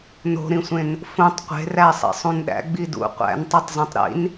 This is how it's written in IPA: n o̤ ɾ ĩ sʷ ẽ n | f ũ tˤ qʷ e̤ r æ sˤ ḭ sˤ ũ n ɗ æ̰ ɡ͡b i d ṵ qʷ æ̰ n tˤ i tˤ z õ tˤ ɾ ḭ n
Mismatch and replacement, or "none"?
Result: none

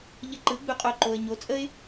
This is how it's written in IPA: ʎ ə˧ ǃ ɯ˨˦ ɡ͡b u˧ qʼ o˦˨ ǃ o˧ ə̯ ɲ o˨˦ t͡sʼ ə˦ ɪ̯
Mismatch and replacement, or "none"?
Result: none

